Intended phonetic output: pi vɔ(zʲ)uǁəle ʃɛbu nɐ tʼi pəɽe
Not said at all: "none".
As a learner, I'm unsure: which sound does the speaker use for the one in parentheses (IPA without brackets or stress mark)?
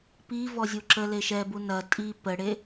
zʲ